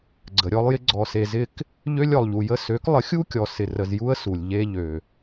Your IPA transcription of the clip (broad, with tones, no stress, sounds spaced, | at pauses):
ɡ͡ǀ ə˨ ɾʲ ɔ˦ lˠ j ɪ˦ ɡ͡ǀ ɔ˨ s e˨ z ɪ˧ k | ʎ ø˧ lʲ ɔ˨ lˠ ʎ u˨ j ə˦ s ø˨˦ k lˠ ə˨˦ xʲ u˦ kʲ ɔ˨ s ɪ˨ r ə˨ z j u˦ ə̯ s u˨ lʲ ʎ e˧ ʎ ø˨